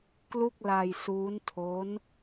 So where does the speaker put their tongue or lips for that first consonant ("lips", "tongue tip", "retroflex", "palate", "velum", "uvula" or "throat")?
velum